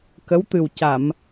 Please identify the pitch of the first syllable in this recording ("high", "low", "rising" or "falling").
rising